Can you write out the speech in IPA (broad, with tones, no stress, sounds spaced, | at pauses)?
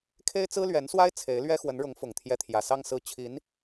kʰ e˥ ɪ̯ t͡s ɹ̩˥ l ɥ ɛ˧˥ n s w a˥ ɪ̯ t͡sʰ e˧˥ ɪ̯ l ɥ ɛ˥ x w ə˧˥ n ɻ ʊ˧˥ ŋ f ʊ˨˩ ŋ t̪ʰ j ɛ˧˥ t̪ʰ j ä˨˩ s ɑ˥˧ ŋ s ɹ̩˥˩ t͡ɕʰ i˧˥ n